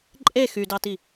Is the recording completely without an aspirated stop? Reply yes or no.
yes